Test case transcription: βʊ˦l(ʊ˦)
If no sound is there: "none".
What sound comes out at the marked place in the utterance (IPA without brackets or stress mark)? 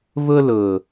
ʊ˨